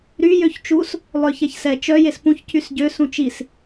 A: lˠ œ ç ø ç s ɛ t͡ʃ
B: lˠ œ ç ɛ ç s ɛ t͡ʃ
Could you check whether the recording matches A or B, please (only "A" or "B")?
B